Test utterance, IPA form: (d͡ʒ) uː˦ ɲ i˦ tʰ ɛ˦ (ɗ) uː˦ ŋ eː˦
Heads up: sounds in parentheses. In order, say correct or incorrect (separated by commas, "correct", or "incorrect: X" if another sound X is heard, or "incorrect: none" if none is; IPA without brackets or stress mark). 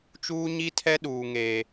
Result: incorrect: t͡ʃ, correct